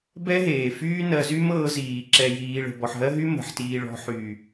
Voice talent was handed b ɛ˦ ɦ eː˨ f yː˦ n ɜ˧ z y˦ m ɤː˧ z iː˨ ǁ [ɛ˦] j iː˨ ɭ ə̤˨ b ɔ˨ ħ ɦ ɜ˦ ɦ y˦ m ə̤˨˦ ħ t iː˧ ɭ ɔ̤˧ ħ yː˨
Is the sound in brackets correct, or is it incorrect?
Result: incorrect